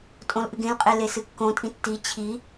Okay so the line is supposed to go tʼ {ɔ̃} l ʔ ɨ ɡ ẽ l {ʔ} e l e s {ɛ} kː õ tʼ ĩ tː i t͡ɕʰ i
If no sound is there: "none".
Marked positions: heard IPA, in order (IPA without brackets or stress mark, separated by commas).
õ, qʼ, ɨ